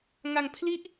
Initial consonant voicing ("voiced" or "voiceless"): voiced